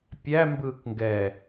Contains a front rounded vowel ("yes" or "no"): no